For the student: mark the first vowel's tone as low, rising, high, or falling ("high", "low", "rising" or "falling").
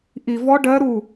low